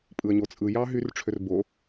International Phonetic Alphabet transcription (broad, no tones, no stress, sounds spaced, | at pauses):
pʼ ɯ ə̯ ɲ o t͡sʼ ɯ j ɑ ɦ y r ʈ͡ʂʰ ø r b o